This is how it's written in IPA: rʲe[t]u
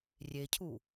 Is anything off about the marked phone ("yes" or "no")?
yes